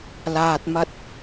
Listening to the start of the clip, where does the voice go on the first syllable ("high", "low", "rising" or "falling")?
low